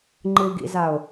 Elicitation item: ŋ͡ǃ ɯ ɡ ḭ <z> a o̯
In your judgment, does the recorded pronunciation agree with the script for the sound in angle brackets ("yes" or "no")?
yes